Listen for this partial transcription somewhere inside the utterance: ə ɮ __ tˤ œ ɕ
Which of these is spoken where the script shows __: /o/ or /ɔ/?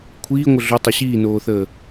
o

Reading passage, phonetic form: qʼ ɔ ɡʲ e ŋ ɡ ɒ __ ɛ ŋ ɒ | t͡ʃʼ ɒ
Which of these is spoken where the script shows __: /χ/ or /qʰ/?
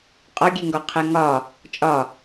qʰ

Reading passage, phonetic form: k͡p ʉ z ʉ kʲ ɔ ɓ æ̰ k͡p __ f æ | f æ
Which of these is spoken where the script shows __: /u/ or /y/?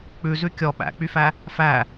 y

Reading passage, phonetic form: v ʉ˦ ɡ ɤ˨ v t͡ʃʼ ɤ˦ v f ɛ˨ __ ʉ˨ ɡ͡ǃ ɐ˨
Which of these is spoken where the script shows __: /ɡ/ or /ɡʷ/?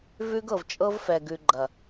ɡ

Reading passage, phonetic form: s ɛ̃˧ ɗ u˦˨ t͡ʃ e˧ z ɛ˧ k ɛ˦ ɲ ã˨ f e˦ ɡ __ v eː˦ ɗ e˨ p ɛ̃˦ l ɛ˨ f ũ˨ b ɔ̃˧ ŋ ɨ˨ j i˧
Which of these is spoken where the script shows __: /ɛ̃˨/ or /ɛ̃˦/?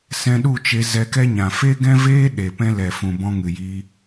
ɛ̃˦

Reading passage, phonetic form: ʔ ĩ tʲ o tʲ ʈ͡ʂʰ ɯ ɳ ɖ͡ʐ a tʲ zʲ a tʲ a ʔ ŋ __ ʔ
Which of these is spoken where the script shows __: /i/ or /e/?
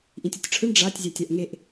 e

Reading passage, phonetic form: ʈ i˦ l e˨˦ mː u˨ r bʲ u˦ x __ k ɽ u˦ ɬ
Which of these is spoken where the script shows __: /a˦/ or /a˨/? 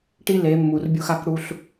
a˦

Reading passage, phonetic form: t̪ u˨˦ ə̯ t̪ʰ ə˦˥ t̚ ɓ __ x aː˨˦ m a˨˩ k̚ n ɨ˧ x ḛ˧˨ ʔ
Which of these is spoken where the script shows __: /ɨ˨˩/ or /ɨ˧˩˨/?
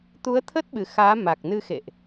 ɨ˨˩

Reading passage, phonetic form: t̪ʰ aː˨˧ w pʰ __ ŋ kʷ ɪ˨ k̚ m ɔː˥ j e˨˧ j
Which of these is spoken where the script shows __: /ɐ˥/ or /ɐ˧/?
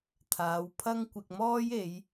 ɐ˥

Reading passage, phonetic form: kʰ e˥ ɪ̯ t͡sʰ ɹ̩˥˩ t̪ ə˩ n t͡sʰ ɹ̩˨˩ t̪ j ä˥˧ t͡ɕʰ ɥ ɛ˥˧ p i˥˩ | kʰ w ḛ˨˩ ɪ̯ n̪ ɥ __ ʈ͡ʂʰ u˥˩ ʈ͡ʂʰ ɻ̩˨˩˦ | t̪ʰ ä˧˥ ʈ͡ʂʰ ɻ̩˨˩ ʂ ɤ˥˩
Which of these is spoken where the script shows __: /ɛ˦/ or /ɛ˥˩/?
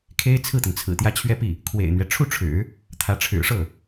ɛ˦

